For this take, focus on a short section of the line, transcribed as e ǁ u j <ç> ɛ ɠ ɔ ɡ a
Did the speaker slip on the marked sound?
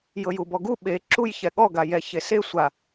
no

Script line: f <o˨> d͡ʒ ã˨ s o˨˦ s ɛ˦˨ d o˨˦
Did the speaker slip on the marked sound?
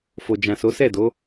no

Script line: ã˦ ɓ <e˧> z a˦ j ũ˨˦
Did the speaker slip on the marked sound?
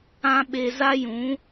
no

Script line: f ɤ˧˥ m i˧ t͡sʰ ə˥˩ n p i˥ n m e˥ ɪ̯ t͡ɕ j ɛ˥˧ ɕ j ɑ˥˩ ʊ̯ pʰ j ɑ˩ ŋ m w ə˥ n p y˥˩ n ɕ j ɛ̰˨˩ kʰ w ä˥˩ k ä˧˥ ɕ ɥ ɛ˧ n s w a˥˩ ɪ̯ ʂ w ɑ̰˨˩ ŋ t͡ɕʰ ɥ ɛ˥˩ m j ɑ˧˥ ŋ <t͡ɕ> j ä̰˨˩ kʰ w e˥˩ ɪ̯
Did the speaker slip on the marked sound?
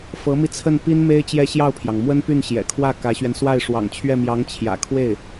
yes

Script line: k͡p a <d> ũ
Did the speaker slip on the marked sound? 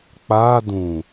no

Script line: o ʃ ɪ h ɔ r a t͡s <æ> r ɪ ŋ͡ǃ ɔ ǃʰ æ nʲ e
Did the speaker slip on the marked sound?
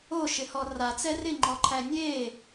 yes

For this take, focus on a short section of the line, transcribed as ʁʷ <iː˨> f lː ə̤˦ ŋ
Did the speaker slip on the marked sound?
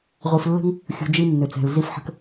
yes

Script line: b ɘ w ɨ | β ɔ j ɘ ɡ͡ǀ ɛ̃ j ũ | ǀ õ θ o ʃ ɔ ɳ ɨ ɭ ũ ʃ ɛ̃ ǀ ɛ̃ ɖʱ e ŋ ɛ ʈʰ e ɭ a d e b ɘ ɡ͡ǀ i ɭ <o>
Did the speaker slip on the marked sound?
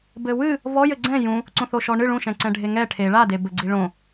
yes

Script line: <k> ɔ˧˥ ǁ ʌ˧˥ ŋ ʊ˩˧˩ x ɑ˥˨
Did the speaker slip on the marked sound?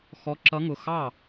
yes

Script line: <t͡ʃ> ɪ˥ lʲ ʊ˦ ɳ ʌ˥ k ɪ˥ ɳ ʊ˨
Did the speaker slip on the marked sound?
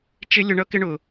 no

